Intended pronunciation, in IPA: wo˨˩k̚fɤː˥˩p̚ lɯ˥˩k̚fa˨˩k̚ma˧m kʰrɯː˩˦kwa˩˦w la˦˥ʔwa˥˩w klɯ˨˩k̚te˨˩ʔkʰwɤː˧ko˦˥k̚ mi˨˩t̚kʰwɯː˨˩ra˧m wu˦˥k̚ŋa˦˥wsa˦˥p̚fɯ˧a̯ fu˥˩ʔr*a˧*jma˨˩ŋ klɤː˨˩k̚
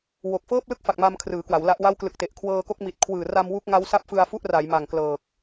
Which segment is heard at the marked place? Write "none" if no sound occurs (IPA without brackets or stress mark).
a˩˦